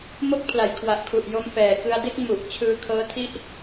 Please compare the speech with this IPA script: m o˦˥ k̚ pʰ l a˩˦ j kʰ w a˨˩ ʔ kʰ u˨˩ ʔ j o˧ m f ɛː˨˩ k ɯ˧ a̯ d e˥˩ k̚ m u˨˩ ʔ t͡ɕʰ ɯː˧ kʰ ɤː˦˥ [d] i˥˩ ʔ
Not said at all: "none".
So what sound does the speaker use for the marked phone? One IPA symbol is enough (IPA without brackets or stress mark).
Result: tʰ